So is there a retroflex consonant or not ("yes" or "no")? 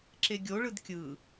yes